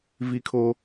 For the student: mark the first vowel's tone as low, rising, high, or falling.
high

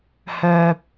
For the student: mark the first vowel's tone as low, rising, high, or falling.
low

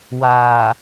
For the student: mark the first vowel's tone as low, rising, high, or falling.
low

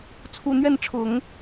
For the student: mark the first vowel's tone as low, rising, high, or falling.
low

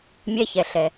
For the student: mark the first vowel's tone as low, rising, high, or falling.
high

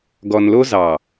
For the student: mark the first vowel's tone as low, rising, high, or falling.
low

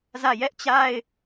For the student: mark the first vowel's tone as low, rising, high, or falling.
falling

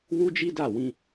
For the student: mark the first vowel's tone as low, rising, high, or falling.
high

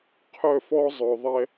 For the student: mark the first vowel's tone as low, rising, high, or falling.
falling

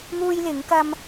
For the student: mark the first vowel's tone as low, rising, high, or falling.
high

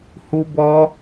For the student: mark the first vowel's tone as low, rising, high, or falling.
high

